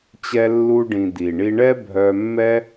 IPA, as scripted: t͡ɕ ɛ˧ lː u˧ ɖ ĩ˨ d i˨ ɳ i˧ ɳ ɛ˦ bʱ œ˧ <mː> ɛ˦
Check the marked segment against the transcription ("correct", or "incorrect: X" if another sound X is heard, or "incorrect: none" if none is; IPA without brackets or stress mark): correct